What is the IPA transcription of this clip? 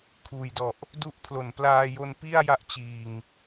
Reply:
kʰuː˨˩jdɔ˨˩ʔ | du˦˥ʔpʰlo˨˩nplaː˧jo˧n pi˥˩a̯ ja˦˥ʔt͡ɕiː˨˩ŋ

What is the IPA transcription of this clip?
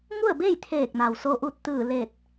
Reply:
ŋu˥˨ə̯be˥˨j t̪ʰeː˧˩k̚ na˩wso˧ ʔu˧t̚t̪ɯː˧˩le˧˩t̚

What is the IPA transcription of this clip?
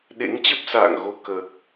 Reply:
ɗḛ˧˥ŋt͡ɕə˦˥p̚sa̰ː˧˨ŋ ɣo˧kəː˨˩k̚

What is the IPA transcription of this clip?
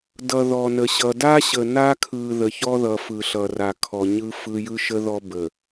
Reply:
dʌ˨ðɔ˨nə˨ɕʌ˨ da˦ɕə˨na˦kʰɯ˨ ðə˨çɔ˦ðʌ˨ fɯ˨ɬʌ˨ra˨kʰɔ˨ ɲɯ˦ fɯ˦ jɯ˦ʃə˦ ðɔ˦bə˨

